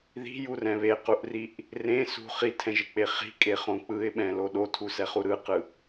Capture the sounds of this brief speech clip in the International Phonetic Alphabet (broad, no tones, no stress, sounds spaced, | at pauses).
ð i̤ j u r ɛ̃ β e q u ʔ r i ʔ | r ẽ s ṳ χ i tʰ ɛ̃ ʒ e k͡p e χ i̤ kʼ e χ õ k͡p ɯ ɪ̯ ɓ ɛ̃ l o ɗ o tʰ u s ɛ χ u ɾ ɯ q ɯ